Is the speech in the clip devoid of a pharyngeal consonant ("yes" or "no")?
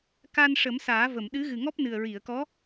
yes